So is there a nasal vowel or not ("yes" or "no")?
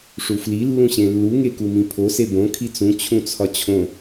yes